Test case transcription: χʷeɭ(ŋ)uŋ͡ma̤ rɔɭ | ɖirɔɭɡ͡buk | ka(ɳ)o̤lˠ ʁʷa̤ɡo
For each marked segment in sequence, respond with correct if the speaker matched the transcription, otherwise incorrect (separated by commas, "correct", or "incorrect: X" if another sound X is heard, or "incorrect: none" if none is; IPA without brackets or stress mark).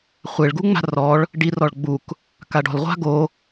incorrect: ɡ, incorrect: ɖ